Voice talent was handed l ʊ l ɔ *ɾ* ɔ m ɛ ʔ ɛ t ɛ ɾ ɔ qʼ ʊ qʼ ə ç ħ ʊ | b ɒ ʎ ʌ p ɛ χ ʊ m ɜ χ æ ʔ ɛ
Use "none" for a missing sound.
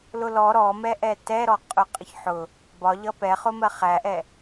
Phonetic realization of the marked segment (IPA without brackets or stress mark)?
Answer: ɾ